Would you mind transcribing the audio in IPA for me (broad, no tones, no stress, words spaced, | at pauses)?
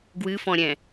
ɡwɨfɔ̃ɾʲɛ̃